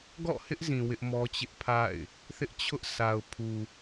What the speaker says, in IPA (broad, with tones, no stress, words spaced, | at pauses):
ɡɔ̰˦˨hɪ˦ʔzĩ˨ wɪ˦ʔmɔ˦t͡ɕɪ˦ʔpʰa̰˦˨ɪ̯ | θɪ˦ʔt͡ɕʰʊ˦ʔ sa˨ʊ̯pʰu˨